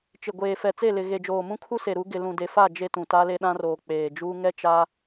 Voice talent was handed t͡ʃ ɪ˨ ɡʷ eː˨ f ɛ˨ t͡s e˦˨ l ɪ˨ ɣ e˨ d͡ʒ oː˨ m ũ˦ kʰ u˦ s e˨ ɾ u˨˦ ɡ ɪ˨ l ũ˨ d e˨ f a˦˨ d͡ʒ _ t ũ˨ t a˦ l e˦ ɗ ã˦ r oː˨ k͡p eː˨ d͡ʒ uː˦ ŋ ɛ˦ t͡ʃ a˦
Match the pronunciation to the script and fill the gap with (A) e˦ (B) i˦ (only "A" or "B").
A